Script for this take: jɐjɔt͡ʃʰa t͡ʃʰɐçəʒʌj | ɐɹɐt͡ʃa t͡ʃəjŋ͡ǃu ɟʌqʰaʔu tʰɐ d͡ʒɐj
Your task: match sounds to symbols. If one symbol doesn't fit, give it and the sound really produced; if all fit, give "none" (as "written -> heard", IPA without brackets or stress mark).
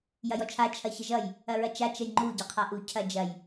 tʰ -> cʰ